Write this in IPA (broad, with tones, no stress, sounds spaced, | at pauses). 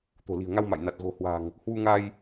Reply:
t̪ o̤˨˩ l i̤˨˩ ə̯ ŋ a˧ w m a̰˧˨ j n a˨˩ t̚ ɣ o̤˨˩ h w a̤˨˩ ŋ | h w u˧ ŋ a˧ j